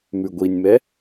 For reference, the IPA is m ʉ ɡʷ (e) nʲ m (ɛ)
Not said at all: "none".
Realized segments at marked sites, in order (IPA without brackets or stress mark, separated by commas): i, ɛ